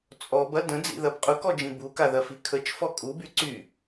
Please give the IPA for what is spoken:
t͡sʼɔbɐ də̃d͡zḭðɐb qʼʊkɔd͡ʒĩ bukaðɐfi kʰət͡ʃfɔ kʼuby ǀy

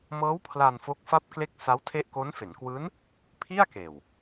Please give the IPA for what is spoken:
mɤː˦˥w pʰla˧n fo˦˥k̚fa˥˩p̚kle˥˩k̚ sa˦˥wtʰe˦˥ʔ ko˦˥n fe˩˦nkwɯː˦˥n | pʰi˥˩a̯keː˨˩w

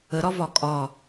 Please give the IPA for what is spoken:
əɾɒvɒ kʼɒ

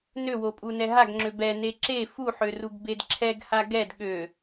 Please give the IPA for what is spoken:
nøwopʼunɛ ɦaɡŋ͡ǁø bɛne ǁe fuħøruɡbed ǁʰɛɡha ɡɛd ɠø

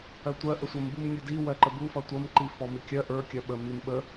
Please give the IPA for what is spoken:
ɜtʷɜ ʔəsʷʌm bumnʲudi wɜǃəbu fʌtʷʌm ǃifɔmikʲɜ ʔə˞ kʲɜɓə mimɓə

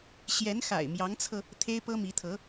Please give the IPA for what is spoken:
ɕjɛ˧˥nxa̰˨˩ɪ̯mjɑ˧˥ŋt͡sʰɤ˧ | t̪ʰe˥ɪ̯pɤ˥mi˧˥t̪ʰɤ˧˥

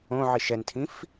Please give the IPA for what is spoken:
õʕi ʃɛntʰĩf

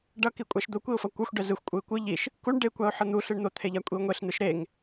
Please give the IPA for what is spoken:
ɖʌki kʷʼaʃd̪okʷiʊ̯fʌ kʷʌxʷɖɛ zɯxʷkʷʼɯɪ̯ kʷɯ ʎiʃ | kuɳ ɖekʷaʊ̯ ħʌn̪u ɬɯɳn̪ot̪ʰeʎa kʷʼiʊ̯ŋʷeɬ n̪ɯʃɾeŋ

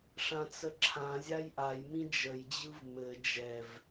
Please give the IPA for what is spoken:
ʂãt͡səǁʰãzʲaj ʔajmĩ d͡ʒəjd͡ʑɯv mɘ d͡ʒɛv

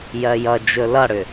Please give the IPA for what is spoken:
jɜjʌd͡ʒɵ lʌɽʏ

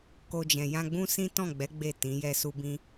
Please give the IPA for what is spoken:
ko˧d͡ʒɛ̃˨ jã˧ɡ͡bũ˦ sĩ˦tɔ̃˦˨ɡ͡bɛ˨˦ ɡ͡be˦˨ tĩ˨˦ jɛ˧su˧bĩ˧

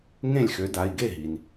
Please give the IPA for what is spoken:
ŋẽ˥˩lʲxø˨˥da˩˧˩i̯ ɡe˥˩ɦi˩n

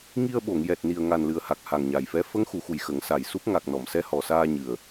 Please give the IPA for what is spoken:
ŋi˧ə̯ɓo˨˩˨ŋ jɛ˨˩t̚ni˨˩ə̯ ŋa˨˩nlɨ˨˩ə̯ha˨˩k̚ ha˨˩ŋɲa˨˩jfɛ˧˥ fə˧˥ŋxu˨˩˨xu˨˩j xə˨˩˦ŋsa˨˩jsu˦˥p̚ ŋa˨˩k̚nɔ˨˩˨m sɛ˧˥hɔ˨˩saː˧ ɲɨ˨˩ə̯

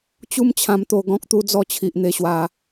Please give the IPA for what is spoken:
t͡ɕu˦mt͡ɕʰã˧mt̪o˧ ɡɔ̃˦k̚t̪u˦d͡zɔ˥˧ t͡ɕʰi˨ʔn̪e˧ɕwa˧

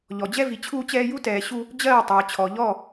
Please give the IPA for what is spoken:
ʎɔ˨d͡ʑɛ˦vi˨ t͡ɕʰuː˦t͡ɕɛː˦ ju˦tɛː˨ ɕu˦ | d͡ʑɜː˦˨tˤɜː˨t͡ɕʰɔ˨ ʎɔ˦˨

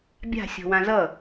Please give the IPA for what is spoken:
bʲa̤ sʲɔ̤wãzʌ

